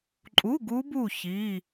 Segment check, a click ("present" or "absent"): present